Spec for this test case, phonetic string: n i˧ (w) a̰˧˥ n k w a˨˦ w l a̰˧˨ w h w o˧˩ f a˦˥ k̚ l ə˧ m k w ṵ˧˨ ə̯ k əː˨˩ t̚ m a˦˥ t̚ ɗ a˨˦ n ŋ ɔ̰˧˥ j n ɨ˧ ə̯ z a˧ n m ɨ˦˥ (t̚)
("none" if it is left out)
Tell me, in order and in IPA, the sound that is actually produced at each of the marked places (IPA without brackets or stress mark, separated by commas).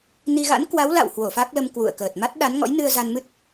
ɣ, t̚